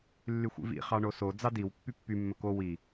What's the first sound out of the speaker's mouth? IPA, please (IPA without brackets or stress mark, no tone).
lː